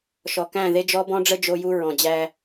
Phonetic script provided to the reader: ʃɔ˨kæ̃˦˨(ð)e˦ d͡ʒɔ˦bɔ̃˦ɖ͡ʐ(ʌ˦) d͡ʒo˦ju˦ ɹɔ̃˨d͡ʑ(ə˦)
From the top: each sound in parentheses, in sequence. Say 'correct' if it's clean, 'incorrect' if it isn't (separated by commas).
correct, incorrect, incorrect